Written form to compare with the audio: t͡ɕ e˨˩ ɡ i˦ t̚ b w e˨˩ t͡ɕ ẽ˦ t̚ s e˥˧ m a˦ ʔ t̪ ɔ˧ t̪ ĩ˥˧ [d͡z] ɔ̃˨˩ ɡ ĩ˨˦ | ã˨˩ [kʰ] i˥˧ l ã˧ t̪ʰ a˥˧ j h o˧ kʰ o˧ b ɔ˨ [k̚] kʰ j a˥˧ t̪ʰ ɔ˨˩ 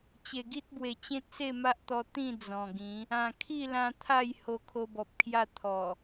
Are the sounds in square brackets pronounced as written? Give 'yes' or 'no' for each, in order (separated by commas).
yes, yes, no